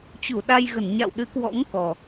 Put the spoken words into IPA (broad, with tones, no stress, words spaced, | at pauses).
t͡ɕu˧˩ɗa˧jɣə˧˩n ɲa̰˧˨wɗɨ˨˦kwɔ̰˧˥ŋ kɔ˨˩